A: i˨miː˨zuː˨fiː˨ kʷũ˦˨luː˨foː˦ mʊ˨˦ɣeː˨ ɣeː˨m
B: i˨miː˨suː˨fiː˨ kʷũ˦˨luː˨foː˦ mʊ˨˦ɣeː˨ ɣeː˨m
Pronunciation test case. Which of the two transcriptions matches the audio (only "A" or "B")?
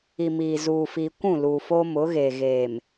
A